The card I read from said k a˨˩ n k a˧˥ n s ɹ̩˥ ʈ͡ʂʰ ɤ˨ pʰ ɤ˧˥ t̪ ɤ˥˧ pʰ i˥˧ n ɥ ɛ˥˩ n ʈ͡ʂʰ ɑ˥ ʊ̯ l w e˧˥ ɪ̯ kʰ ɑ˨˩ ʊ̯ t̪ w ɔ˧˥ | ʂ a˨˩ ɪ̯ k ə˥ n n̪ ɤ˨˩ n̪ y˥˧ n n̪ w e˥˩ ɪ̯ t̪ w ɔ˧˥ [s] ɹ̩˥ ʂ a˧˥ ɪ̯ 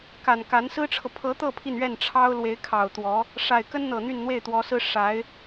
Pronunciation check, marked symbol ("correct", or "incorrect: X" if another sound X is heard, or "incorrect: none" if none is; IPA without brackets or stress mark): correct